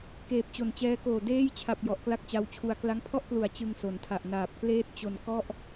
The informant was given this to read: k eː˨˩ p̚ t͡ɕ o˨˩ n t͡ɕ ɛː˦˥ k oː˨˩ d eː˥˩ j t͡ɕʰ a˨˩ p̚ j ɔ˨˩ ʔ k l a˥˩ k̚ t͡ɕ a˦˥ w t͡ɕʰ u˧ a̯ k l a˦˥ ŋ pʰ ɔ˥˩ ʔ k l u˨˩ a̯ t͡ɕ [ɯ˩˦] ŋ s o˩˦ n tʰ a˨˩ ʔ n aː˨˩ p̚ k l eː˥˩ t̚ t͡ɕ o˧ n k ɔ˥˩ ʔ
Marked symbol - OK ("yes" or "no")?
no